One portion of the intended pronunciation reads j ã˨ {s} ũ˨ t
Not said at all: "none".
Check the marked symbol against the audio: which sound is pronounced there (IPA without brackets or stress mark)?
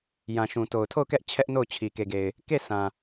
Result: ʃ